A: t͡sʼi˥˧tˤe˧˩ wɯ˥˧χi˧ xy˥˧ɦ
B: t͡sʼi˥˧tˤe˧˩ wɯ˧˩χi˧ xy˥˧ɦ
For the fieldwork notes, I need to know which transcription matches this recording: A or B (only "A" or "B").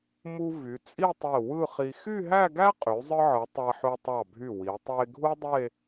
A